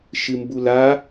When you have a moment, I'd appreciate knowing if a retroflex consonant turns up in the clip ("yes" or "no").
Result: no